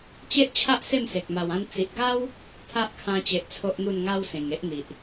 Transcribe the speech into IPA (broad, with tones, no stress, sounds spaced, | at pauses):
t͡ɕ e˦ ʔ t͡ɕʰ a˦ ʔ s e˥˧ m s e˨ k̚ m a˨˩ w ã˧ n t͡s i˨ ʔ ɡ a˦ w | t̪ʰ a˦ ʔ kʰ ã˧ t͡ɕ e˨ ʔ t͡sʰ o˦ ʔ n̪ u˥˧ n ŋ a˦ w s ẽ˨˩ ŋ e˦ ʔ n̪ i˨ ʔ